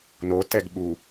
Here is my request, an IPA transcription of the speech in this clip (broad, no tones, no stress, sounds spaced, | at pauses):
n o t ɛ ɡ ɓ u